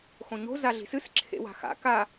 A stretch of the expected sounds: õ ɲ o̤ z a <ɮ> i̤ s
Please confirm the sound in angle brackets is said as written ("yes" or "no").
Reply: yes